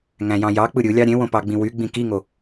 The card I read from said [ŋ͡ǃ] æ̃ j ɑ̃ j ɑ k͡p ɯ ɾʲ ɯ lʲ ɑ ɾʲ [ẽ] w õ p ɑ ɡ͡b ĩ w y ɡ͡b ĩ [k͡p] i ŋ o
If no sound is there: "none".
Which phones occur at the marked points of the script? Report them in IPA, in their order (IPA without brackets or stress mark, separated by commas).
ŋ, ẽ, k